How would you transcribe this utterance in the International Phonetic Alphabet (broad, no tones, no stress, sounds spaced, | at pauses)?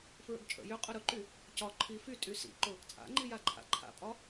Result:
f ɹ ə̰ ɡ t͡ʃʼ ə̰ j ʏ qʼ ʊ ɾ ʊ ǃ y | c ɒ ǃʰ i f y tʼ y s ḭ ǃ ʊ | t͡sʼ a̰ ŋ͡ǃ i j a ǃʰ a̰ ǃʰ a̰ pʼ ɒ